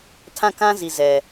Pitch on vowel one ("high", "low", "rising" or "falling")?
falling